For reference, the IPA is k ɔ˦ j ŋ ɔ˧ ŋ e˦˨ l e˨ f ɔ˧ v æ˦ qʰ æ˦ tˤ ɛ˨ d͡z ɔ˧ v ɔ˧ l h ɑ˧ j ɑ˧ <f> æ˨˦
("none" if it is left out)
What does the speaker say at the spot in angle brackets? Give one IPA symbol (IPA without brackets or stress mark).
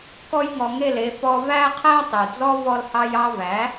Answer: v